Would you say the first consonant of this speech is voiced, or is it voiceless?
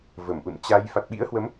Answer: voiced